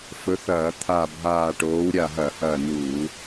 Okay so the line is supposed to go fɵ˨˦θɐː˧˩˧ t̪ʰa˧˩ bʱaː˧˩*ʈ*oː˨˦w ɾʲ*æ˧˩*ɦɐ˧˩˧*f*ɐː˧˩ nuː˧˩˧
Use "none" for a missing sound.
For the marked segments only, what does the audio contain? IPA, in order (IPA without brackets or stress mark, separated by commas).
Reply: ʈ, a˧˩, h